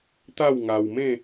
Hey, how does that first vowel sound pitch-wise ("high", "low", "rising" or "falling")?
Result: falling